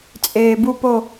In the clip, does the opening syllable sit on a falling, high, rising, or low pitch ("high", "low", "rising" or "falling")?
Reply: low